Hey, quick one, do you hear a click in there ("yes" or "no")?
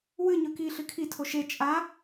no